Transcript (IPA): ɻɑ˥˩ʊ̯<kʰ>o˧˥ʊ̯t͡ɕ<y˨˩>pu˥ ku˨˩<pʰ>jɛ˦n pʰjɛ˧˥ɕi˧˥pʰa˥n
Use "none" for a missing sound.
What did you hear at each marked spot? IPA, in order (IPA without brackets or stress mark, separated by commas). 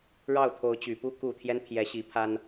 t̪ʰ, y˨˩, t̪ʰ